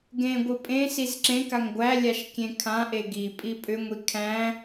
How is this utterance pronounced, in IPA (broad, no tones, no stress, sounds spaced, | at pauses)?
ɡ ẽ ɡʷ ɨ pʼ ẽ s i z ǁ ẽ k a ŋ ɡʷ æ lʲ a ʃ kʲ ẽ kʰ ã ʔ e ɡ i pʼ i pʼ ʏ ŋʷ i kʰ æ̃